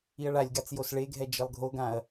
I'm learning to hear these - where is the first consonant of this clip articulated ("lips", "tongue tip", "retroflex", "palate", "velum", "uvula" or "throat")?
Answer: retroflex